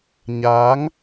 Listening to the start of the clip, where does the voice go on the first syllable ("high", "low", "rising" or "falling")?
rising